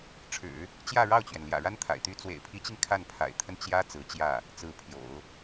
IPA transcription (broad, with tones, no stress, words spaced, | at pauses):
ʈ͡ʂʰɻ̩˨˩˦ | t͡ɕjä˥˧ɻɑ˥˩ʊ̯t͡ɕɥɛ˩n ljä̰˨˩ɻa˥nt̪ʰa̰˨˩ɪ̯ t̪y˧˥t͡swḛ˨˩ɪ̯pʰi˧˥t͡ɕi˧ŋ kʰa˥˩npʰa̰˨˩ɪ̯t̪ʰə˥˩n t͡ɕjä˥ t͡sɹ̩˧˥ t͡ɕjä˥˩ | t͡sɹ̩˧˥pʰjo̰˨˩˦ʊ̯